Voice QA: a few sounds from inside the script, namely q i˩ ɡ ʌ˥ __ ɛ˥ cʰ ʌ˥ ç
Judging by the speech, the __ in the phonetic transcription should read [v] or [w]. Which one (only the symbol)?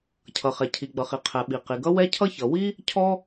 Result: w